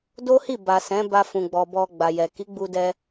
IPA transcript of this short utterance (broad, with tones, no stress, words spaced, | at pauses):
do˦hi˦˨ba˨ sɛ̃˨˦ba˧ fũ˨ɡ͡bɔ˨ bɔ˧ɡ͡ba˨jɛ˨ ki˨˦ɡ͡bu˧dɛ˧